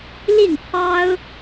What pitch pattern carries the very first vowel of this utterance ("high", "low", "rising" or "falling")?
falling